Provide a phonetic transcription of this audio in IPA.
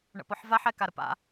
ɳə̰pɔħvaħ ɛkaɾəpa̰

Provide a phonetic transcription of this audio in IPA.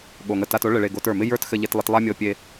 ɠo˨ŋə˧ta˧to˦ ɭɘ˧ɭe˧ ɡo˧tə˞˨mɪ˦ jə˞˦txɘ˧ʎe˧tlˠɪ˧t lˠa˦mʲɤ˧pʲe˧

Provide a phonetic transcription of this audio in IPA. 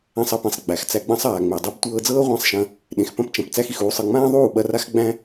æ̃˧sˤɐ˧pẽ˨sˤ ɡ͡bæ˨xt͡sæ˧ɡ͡bɐ̃˦sˤaː˨ ŋ͡me˨dˤe˦b tʷɤː˧d͡zɤː˦ʁʷã˦˨sˤʃɐ̃˧ | ɗẽ˨xpɐ̃˦pt͡ʃɐ̃˨p t͡sæ˦xi˨xuː˧sˤɤ˧ ŋ͡mãː˦ðˤuː˦˨ ɓɐ˧ra˦xɡ͡bæ̃˦

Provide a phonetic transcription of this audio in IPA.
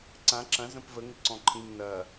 ǀã ǁɐ̃zə̃p vəŋɪǀɔ̃ ǃʰĩŋ nɐ

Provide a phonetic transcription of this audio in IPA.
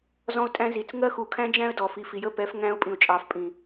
zɔ̃˦ʊ̯tʼæ̃˦zi˨t͡s ŋɜ˦xu˨kʰæ̃˦d͡ʒæ̃˦ə̯ dɔ˨fi˨fi˨ jə˦˨pɛ˨˦f ŋæ̃˦ʊ̯pʼĩ˨ʊ̯t͡ʃʼɑ˨f pʼĩ˨

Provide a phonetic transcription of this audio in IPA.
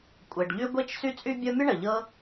kʷʼe˨ɖʎy˥ ɡʷe˦t͡ʃ sy˥t͡sʼy˥ bʲɤ˦mʲə˥ ɳə˩ʎɤ˦

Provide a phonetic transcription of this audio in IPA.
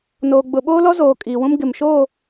noː˨ɡ͡bʊ˨ɓoː˦ lɔ˦zoː˨ kʼiː˨wũ˦m ɡɪ˨m ʃoː˦˨

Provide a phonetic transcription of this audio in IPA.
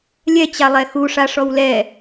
lʲɛ t͡ɕalˠɛxu ʂaʂɔwlɛ

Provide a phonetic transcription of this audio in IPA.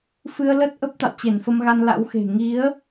fɨ˧ə̯lə˦˥t̚ʔə˦˥p̚ t̪a̰˧˨wt͡ɕe˧˩nfə˧mɣa˧n la̰˧˥wxe̤˨˩ ŋi˨˦ə̯

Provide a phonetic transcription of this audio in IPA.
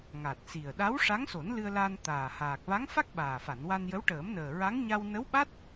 ŋa˨˩t̚si˨˩ə̯ ɗa˧˥w ʂa˧˥ŋso˨˩˦nlɨ˧ə̯ la˧n t̪aː˨˩haː˨˩k̚ va˧˥ŋfa˦˥k̚ ɓaː˨˩fa˨˩˨nwa˧njə˧˥w ʈəː˨˩˦mnəː˨˩ɹa˧˥ŋ ɲa˧wnə˧˥wɓa˦˥t̚

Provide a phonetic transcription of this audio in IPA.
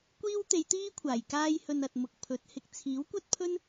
kʷiː˥wt̪e˨˧jt̪iː˥kʷʰaː˨˩j kaː˧jhɵ˨n ɐ˨t̚mʊ˨k̚pʰɵ˨˥t̚hɪ˨k̚ t͡sʰiː˨˥wkʷɐ˥t̚pʰɵ˥n

